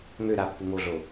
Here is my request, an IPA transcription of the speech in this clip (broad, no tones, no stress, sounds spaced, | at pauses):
ŋ ø ɾ a pː u ŋ o ɮ o